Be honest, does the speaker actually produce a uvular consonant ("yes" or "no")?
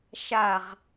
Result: yes